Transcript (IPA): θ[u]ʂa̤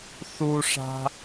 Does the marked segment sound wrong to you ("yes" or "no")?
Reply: no